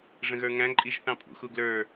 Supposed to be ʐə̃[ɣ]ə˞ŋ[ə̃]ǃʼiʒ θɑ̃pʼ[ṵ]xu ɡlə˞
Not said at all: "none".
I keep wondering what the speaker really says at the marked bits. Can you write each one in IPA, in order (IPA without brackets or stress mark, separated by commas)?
ɣ, æ̃, ṵ